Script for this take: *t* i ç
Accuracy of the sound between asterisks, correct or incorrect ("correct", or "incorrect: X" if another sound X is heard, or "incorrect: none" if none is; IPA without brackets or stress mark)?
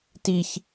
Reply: correct